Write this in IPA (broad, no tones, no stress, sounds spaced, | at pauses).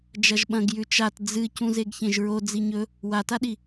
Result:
d͡ʒ ɐ ʒ ɓ ɐ̃ ɡ j ʉ t͡ʃ a t d͡z ɨ c ũ z e ɡ ç ẽ ʒ ɹ o d͡z i ɲ ɵ | w a t a ɗ i